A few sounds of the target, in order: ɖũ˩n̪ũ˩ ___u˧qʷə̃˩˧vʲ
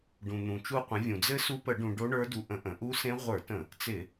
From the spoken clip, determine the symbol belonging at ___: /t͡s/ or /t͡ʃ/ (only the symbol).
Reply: t͡ʃ